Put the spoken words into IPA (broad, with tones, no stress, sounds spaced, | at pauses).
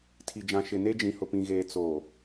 tʰ i˨ d͡ʒ ã˨ ʃ ɪ˨ n e˦ d͡ʒ ĩ˨ h ʊ˨ p ĩ˨ ɣ eː˨ t͡s o˨